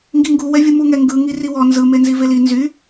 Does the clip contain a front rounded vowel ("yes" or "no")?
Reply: yes